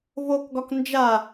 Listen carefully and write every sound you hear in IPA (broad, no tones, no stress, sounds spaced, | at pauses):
v o k ɡ ɒ k n d͡ʒ a